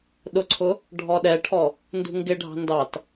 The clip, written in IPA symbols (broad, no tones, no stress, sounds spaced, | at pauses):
ɗ ʊ ǀʰ ʊ | ɖʱ ɔ ɗ ɛ ʈʰ ɔ | n d ṳ ŋ ɡ ɪ ɖʱ ɑ̤ n d ɑ t